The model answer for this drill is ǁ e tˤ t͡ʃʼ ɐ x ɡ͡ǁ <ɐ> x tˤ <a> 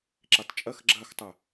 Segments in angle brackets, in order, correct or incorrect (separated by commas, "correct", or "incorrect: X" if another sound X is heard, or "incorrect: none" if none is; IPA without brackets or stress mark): correct, correct